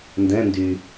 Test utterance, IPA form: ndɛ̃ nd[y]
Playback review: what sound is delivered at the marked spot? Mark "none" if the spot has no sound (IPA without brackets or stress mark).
y